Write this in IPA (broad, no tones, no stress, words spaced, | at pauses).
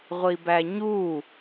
ʁʷibæɲu